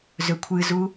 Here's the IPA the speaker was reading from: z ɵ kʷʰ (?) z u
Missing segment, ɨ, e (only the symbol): ɨ